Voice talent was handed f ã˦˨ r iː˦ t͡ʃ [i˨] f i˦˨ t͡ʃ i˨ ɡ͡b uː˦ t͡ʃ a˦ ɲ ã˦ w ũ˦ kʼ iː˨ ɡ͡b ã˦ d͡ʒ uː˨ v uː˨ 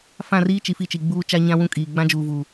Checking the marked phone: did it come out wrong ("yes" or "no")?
no